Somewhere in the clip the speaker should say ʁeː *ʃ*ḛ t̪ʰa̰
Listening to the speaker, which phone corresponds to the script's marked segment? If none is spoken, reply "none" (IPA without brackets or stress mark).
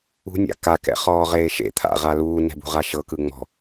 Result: ʃ